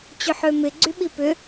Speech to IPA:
t͡ɕʏħømɪ ɡ͡ǀyɓipʏ

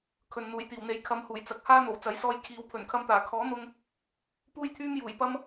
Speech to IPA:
kʰɵ˨n n̪uː˨˩jt̪iː˨˩wn̪e˨j kʰɐ˨˧mhuː˨˩jt͡sɐ˨˥k̚ haː˥n̪o˨˩w t͡sɐ˨˥jsɔː˧j kʰiː˨˧w pʰɵ˨˩nkʰɐ˧mt̪aː˨˩ kʰɔː˨˥n̪ʊ˧ŋ | puː˥jt̪ʰyː˥mjuː˨˩j pɐ˥m

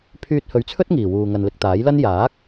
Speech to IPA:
pʰyː˧t̚hɵ˨˥ɥt͡sʰɵ˥t̚ ŋiː˨˩wuː˨ŋɐ˨n lɪ˧k̚t̪aː˨˥jlɐ˥n jaː˨˥k̚

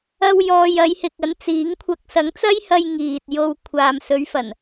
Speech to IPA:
ɐ˧w jɔː˨jɐ˨˧jhɪ˨k̚ ɐ˨˥nt͡siː˨˥ŋkʷʰɐ˧k̚ sɐ˨˥ŋt͡sɐ˥jhɐ˧j ŋiː˨t̚jo˧wkʷʰaː˨m sɵ˨˧ɥfɐ˨˩n

